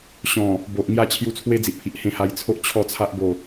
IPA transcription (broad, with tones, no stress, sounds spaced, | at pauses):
ɕ ɔ̃˨˩ | b o˨ ʔ ŋ j a˥˧ t͡ɕʰ j u˧ t͡sʰ w e˦ d͡z i˨ ʔ pʰ i˨ ʔ h ẽ˧ h a˧ j t͡sʰ o˦ ʔ t͡ɕʰ ɔ˥˧ t͡sʰ a˦ ʔ b o˥˧